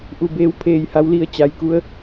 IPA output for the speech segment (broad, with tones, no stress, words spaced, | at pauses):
ʔu˧˩beː˧˥w pʰeː˩jha˩˧wli˩ə̯ t͡ɕa˩jku˧ə̯